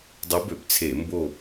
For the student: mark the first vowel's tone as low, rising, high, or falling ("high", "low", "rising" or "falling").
rising